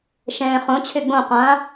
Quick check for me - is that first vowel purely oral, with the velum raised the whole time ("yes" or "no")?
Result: no